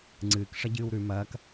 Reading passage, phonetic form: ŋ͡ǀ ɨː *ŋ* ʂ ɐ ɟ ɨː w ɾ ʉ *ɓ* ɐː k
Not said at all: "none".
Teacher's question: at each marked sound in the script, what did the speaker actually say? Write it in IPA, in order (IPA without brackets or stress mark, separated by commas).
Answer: k, m